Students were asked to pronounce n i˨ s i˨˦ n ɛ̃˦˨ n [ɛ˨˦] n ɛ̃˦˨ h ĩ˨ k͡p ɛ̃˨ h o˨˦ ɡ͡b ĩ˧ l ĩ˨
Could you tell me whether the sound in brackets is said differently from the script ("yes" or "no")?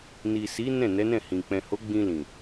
no